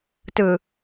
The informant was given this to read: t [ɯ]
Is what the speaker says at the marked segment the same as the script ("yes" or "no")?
yes